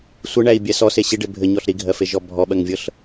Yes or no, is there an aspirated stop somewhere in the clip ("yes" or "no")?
no